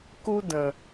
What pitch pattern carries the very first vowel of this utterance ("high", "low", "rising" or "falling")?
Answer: high